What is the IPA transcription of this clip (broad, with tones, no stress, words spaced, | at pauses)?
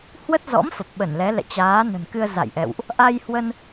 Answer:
hwə˦˥t̚zɔ̰˧˥m fə˨˩p̚ɓə˧˩nlɛ˨˦ lɛ̰˧˨t͡ɕaː˨˦ nə̤˨˩nkɨ˧ə̯ za̰˧˨jʔɛ̰˧˨wʔ | ʔa˧jhwə˧n